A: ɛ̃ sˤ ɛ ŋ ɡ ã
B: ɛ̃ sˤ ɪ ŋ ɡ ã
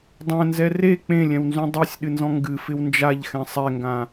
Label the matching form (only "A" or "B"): A